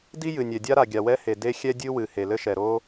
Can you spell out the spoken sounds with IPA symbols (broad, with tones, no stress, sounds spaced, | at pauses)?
d i˥ j ɨ˩ nʲ ɛ˩ dʲ a˥ ɾ a˩ ɡʲ a˩ w ɛ˥ h e˩ d e˥ xʲ ɛ˥ dʲ ɨ˥ w ɨ˩ h e˩ l ɘ˥ ʃ ɛ˩ ɾ o˥